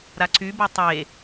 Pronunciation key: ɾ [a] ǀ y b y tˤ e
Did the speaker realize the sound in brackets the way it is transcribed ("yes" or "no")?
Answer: yes